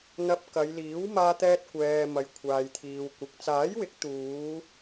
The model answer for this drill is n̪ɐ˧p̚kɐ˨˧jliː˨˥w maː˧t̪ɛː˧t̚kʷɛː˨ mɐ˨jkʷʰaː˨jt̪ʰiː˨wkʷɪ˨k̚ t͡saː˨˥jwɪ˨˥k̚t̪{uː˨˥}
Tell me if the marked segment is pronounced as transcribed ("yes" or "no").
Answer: no